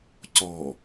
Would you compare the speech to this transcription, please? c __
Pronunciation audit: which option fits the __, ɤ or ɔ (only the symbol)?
ɔ